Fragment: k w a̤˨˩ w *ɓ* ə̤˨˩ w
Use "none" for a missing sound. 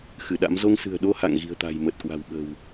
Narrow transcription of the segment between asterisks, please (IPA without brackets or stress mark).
ɓ